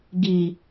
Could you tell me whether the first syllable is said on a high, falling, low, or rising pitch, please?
low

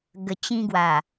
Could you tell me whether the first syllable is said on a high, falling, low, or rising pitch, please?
low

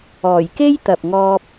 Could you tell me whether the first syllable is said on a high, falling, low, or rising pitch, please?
low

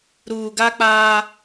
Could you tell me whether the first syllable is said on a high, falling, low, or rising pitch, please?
low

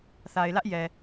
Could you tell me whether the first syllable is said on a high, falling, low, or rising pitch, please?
low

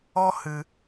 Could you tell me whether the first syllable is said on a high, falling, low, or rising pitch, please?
high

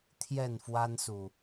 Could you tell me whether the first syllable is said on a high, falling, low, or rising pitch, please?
falling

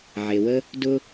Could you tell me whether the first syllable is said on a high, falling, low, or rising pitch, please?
low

